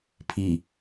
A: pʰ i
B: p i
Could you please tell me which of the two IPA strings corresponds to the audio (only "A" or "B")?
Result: A